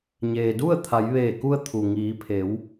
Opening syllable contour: low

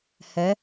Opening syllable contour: rising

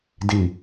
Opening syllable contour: low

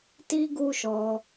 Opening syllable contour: high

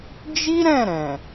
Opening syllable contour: high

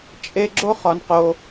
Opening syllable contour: high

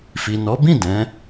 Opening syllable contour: low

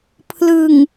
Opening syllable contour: low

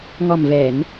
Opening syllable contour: low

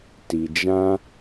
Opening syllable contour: low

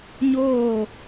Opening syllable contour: falling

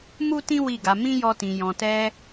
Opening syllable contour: high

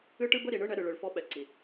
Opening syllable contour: high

